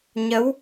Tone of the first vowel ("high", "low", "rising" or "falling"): rising